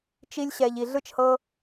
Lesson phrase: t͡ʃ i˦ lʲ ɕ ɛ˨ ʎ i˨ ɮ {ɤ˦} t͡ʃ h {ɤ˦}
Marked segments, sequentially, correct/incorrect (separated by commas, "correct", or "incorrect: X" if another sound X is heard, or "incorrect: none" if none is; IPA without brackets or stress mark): incorrect: ɯ˦, correct